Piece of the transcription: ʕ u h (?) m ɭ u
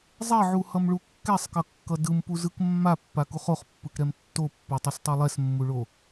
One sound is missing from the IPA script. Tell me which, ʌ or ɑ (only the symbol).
ʌ